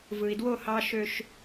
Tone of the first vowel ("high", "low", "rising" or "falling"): low